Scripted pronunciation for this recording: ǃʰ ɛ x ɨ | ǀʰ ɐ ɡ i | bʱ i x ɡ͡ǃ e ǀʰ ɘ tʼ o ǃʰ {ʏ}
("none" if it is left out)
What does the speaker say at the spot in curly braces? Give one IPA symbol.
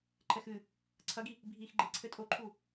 u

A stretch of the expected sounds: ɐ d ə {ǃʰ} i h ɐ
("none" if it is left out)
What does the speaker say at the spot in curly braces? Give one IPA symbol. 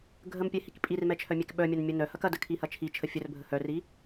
kʰ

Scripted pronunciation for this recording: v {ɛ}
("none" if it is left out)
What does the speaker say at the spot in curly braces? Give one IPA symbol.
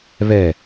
ɛ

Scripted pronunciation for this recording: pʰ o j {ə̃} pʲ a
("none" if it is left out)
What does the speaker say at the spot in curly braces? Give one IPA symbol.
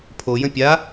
ə̃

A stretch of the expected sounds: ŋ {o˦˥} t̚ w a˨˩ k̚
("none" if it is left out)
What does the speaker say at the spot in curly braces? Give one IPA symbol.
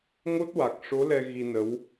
o˦˥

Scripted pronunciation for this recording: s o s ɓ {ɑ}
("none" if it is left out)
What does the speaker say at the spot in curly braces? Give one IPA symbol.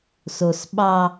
ɑ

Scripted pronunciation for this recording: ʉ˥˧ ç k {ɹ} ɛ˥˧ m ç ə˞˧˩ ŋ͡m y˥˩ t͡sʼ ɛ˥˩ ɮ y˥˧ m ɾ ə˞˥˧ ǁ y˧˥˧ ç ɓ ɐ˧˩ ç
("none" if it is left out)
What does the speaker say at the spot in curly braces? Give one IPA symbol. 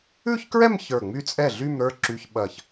ɹ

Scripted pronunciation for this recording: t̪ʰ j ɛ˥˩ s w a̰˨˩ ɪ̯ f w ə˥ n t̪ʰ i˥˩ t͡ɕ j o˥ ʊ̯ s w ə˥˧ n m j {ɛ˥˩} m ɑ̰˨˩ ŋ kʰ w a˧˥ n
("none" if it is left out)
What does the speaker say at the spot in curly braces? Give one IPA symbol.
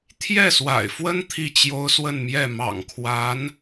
ɛ˥˩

